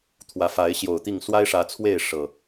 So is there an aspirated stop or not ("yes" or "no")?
yes